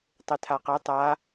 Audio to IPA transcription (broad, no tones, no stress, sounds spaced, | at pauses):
tˤ ɪ tʰ a q ɛ tˤ a